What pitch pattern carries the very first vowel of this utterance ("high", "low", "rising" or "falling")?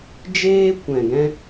high